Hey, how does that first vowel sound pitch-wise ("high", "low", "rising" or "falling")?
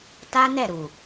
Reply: high